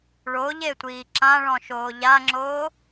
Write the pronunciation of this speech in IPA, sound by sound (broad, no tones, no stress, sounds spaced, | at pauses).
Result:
ɭ o ʎ e tʷ iː ǁ ã ɭ ɔ̃ ʃ oː ʎ a ŋ͡ǁ oː